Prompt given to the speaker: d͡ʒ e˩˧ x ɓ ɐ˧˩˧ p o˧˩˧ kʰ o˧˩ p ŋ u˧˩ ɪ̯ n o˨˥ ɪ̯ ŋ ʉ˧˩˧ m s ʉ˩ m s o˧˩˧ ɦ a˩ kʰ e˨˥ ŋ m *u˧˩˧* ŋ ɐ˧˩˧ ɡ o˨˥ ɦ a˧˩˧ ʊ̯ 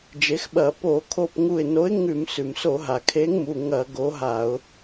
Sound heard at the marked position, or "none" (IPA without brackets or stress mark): u˩˧˩